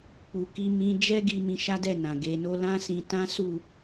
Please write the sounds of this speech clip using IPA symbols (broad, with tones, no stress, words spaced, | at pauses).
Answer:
k͡pu˧ki˦mĩ˦ d͡ʒɛ˦ɡi˧ mĩ˧ʃa˦dɛ˦˨ nã˨ɡe˧no˦ lã˦sĩ˧tã˦su˦˨